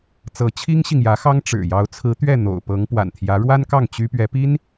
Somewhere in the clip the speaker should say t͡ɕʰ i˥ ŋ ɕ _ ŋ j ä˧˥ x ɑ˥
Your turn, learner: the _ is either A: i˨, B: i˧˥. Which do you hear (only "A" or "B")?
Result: A